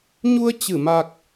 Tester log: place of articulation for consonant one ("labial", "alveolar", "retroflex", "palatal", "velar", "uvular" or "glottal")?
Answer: palatal